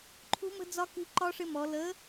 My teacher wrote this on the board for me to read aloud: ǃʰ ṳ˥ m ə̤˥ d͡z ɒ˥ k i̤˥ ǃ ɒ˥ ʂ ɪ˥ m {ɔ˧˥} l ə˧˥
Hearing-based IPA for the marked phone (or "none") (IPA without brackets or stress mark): ɔ˧˥